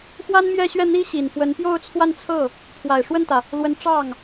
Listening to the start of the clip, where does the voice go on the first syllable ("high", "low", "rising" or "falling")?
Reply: high